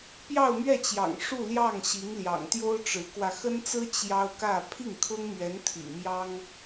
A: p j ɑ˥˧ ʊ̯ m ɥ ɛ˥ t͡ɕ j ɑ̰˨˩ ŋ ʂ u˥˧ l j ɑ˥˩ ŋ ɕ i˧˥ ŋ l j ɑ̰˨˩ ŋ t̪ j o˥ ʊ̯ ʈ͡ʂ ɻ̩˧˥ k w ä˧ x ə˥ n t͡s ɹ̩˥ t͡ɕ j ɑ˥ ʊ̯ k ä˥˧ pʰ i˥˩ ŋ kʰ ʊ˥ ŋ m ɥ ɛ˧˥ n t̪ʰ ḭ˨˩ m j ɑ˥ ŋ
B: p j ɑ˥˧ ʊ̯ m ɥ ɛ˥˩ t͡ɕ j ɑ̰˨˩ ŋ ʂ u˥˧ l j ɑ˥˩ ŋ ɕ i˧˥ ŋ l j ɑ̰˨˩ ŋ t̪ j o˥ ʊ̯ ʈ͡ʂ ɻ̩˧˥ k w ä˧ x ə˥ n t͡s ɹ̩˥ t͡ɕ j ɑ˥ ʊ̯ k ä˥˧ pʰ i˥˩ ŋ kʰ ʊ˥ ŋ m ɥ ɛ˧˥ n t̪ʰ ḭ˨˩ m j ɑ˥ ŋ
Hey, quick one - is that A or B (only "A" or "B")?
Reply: B